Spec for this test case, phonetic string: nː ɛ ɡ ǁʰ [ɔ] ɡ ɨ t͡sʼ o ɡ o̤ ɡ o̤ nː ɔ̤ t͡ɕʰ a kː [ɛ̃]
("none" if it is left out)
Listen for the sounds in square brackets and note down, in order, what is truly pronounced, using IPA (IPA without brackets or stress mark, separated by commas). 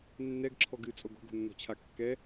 ɔ, ɛ